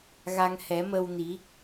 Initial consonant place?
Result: velar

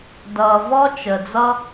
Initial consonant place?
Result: alveolar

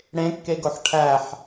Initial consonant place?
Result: retroflex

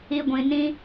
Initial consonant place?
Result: velar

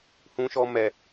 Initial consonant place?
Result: glottal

